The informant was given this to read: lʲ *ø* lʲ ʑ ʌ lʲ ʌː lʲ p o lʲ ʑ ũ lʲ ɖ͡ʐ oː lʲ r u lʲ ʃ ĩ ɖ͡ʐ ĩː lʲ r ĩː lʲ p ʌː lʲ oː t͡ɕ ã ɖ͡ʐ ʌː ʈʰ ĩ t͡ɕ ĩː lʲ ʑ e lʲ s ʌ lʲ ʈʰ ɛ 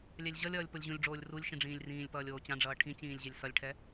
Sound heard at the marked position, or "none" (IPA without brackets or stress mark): ɛ